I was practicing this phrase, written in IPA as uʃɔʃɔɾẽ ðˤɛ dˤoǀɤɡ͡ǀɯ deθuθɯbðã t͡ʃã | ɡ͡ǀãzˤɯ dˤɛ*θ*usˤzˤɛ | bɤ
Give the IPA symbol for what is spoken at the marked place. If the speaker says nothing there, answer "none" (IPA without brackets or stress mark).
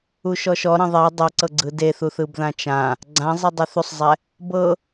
θ